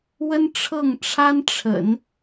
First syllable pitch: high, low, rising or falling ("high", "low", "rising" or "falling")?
high